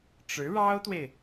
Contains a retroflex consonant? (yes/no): yes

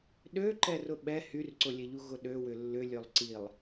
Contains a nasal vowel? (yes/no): no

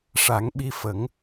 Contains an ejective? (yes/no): no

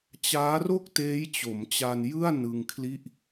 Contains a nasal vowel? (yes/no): no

